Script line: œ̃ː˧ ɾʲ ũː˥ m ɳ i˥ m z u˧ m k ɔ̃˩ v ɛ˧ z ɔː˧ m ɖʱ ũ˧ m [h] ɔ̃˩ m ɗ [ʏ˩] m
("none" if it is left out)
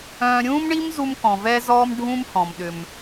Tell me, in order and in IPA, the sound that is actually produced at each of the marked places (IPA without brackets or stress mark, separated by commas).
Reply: h, ʏ˩